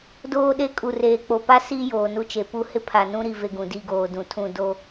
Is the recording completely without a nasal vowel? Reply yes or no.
no